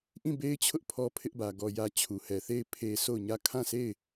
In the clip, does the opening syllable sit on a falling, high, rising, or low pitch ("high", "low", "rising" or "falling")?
falling